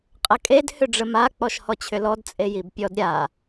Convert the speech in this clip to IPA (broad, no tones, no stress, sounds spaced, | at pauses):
qʼ ə kʼ e d h ʏ ɖ͡ʐ ə m a k͡p ɔ ʃ h ɔ t͡ɕʰ ʏ l ɔ d t͡sʼ e j i b pʲ ɔ d ɾʲ a